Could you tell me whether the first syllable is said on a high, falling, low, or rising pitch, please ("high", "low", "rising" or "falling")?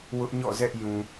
high